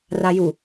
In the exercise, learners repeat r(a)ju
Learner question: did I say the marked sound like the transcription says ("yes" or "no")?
yes